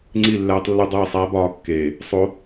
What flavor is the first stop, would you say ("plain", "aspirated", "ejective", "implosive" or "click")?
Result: click